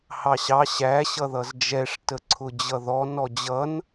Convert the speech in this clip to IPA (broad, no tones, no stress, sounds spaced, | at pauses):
h ɑ ɕ ɑ ɕ æ ɕ ʌ ð ʌ z d͡ʒ ɛ ʂ t ə ǀʰ ʊ d͡ʑ ʌ ð ɔ n ɔ d͡ʑ ʌ n